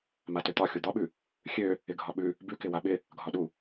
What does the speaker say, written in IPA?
matøt̪ɒ xʲud̪ɒɓʉ | xʲø | ɪɡʱɒɓʉ | bʉkɪ waɓɪ | ɡʱɒɗu

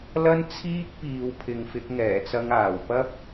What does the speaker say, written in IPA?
lɐ˥n t͡sʰiː˥k̚piː˨w pʰɪ˨˧ŋfɪ˨˥k̚ŋɛː˨˩t͡sɐ˧ŋ aː˨˩wpɐ˥p̚

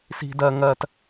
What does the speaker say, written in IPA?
si̤˦dɜ˦ ŋɜ˧t

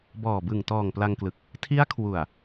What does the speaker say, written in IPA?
bɔː˨˩bɯ˨˩ŋtɔː˨˩ŋ pla˧ŋklɯ˨˩k̚ | tʰi˦˥a̯kʰwu˨˩a̯

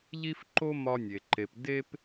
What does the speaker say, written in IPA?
ʎi˥fǃo˥ mɒ˥nʲe˧ ǃe˧p de˥p

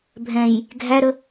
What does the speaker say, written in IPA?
bʱɛ̃j | ɡʱæɾə

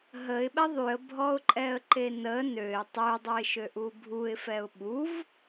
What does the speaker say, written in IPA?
ɦəɪ̯ɓɛ ðˤyə̯bʱɔʊ̯ǃʼɛə̯ǃe nə nøɪ̯ tˤødˤuɪ̯ʃøʔu bʱuɪ̯fɛʊ̯ ɓuv

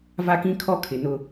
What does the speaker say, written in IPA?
va˦kĩ˦ kʰɔ˦kʰɪ˨nʊ˦

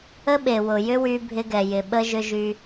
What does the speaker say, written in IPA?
ə˦ɓe˨wʊ˨jʏ˦ wy˦bʱɪ˦ɡɛ˨jɪ˨ ɓə˦ʒʏ˦ʒy˦

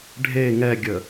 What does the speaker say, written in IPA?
ɖʱe ŋɛɡʲə

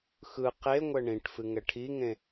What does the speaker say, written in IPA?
xɯ qe ŋʷɛɳĩʈfɨ ŋɛʈʰiŋẽ

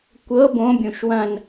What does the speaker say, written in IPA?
kʷɤ bõbʲũʃ wɐ̃n

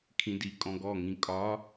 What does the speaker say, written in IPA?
kʰĩdi kʼɔ̃ɡɔŋĩ kʼɒ

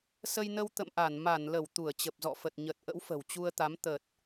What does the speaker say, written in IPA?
sə˧jnə˧w t̪ə̰˧˨mʔa˧˩n ma˧˩nlə˧˩w t̪u˧˩ə̯t͡ɕə˨˩p̚zɔ̰˧˨fə˨˩t̚ ɲə˨˩t̚ ʔə̰˧˥wfə̤˨˩wt͡ɕu˧ə̯t̪a˨˦m t̪ə˨˩t̚

